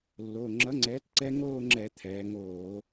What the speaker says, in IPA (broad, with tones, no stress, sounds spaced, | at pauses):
lː o˩˧˩ ŋ͡ǁ ʌ˩˥ ŋ͡ǀ ɛː˩˥ t ǀ ɛ˦˥ ŋ oː˥˧ ŋ͡ǁ ɛ˧˩˧ t̪ʰ ɛː˩˧ ŋ oː˧˩˧